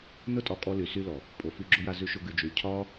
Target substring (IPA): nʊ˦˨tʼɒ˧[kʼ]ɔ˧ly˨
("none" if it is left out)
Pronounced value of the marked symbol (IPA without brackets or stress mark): kʼ